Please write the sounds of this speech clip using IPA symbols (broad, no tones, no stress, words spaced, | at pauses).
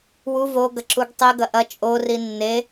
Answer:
wu voɡɐǁuɡ tˤiɡɐ ʔɐ t͡ʃʼori nːe